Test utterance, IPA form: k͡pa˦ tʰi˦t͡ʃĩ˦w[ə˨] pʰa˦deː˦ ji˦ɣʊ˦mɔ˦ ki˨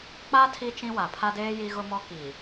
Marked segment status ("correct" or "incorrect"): incorrect